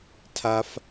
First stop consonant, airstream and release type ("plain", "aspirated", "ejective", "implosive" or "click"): aspirated